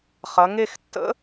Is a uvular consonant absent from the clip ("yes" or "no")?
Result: no